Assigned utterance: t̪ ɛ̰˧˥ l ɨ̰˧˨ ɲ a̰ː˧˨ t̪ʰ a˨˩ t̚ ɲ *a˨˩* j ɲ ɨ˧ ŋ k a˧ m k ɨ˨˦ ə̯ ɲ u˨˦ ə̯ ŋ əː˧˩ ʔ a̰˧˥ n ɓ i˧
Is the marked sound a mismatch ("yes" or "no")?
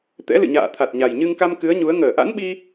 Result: no